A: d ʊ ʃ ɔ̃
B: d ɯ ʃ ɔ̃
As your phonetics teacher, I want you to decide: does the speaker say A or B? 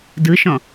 B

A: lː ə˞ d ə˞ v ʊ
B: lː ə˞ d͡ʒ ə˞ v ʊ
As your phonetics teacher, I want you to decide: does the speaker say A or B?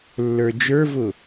B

